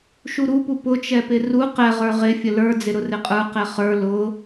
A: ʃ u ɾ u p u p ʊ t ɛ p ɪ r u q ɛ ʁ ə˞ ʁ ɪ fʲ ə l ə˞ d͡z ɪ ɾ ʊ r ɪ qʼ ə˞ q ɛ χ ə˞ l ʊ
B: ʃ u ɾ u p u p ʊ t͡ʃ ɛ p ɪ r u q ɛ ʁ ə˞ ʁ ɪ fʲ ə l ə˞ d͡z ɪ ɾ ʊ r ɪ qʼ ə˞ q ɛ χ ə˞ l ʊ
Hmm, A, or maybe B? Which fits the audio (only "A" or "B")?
B